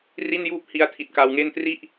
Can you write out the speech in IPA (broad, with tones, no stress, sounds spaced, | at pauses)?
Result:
r i˥˩ n j uː˥˩ p̚ h i˧ a̯ tʰ i˨˩ t̚ k a˧ w ŋ e˥˩ n t r i˥˩ ʔ